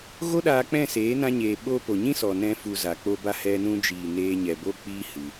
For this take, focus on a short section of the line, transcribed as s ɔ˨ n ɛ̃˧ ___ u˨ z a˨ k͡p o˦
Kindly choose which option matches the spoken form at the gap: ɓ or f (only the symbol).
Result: f